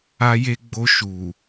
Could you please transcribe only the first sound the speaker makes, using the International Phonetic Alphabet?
a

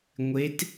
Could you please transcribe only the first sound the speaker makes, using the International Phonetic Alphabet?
ŋʷ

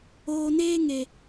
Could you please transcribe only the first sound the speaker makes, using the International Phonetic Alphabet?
oː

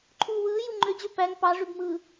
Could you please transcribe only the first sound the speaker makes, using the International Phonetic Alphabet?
ǃʰ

